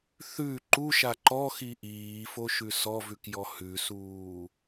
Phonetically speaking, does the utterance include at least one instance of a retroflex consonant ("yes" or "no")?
no